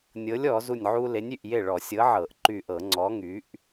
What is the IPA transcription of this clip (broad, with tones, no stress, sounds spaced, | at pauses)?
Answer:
nʲ ɤ˨˥ lʲ ɔ˧˩˧ z u˧˩ nʲ ʕ u˦ l e˨˥ nʲ y˧˩ ʔ j e˥˩ ɭ ɔ˧˩˧ sʲ ɤ˨˥ ʕ ɤ˧˩˧ ʔ ǃ y˧˩ ʔ ɤ˧˩˧ ŋ͡ǀ ɔ˨˥ ŋ y˨˥ ʔ